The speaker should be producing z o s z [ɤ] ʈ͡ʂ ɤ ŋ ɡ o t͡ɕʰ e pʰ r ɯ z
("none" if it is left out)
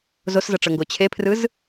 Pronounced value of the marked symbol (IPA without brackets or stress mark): ɤ